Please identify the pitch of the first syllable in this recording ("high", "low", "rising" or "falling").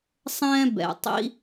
high